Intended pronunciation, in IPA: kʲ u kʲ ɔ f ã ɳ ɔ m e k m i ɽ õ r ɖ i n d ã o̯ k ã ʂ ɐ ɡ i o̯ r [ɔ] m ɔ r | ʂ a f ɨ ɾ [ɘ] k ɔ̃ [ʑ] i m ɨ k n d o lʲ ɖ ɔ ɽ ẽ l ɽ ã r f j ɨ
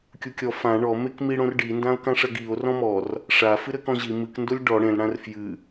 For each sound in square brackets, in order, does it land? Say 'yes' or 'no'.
no, yes, yes

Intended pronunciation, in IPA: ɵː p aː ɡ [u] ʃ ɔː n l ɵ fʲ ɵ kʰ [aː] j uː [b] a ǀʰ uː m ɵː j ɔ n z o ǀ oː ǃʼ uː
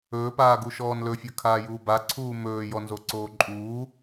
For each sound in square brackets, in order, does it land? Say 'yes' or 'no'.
yes, yes, yes

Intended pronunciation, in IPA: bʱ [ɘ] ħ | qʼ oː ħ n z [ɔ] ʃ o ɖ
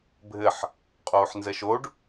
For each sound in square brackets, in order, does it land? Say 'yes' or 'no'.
yes, no

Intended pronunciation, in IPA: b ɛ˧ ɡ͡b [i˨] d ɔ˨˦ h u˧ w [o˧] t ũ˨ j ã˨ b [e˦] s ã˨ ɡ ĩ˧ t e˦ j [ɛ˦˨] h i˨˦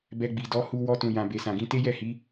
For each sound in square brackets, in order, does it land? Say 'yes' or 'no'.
yes, no, no, yes

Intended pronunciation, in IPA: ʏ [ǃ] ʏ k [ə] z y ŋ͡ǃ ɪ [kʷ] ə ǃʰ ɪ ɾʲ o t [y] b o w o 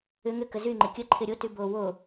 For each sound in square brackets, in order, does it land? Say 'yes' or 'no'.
no, yes, no, yes

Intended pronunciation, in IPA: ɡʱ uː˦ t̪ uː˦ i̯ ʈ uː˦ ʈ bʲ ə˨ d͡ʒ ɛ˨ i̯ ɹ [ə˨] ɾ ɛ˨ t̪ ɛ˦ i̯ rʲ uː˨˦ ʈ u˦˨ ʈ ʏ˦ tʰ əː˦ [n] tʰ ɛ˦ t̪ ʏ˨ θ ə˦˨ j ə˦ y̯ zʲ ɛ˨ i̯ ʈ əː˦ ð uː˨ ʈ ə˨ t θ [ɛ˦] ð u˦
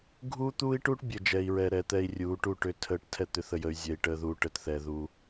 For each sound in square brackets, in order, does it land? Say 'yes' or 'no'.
no, no, no

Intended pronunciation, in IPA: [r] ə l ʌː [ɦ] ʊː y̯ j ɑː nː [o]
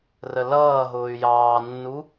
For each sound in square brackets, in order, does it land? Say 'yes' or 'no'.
yes, yes, no

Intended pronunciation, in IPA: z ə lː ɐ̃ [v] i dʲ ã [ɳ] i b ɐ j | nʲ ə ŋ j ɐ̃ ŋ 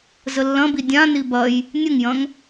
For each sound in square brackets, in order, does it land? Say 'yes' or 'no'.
no, no

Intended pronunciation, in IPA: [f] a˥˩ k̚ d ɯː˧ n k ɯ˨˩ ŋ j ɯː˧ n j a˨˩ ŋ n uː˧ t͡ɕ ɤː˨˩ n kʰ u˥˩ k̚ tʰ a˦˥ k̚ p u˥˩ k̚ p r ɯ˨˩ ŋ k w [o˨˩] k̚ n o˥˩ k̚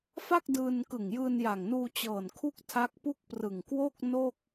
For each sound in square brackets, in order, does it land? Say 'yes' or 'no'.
yes, no

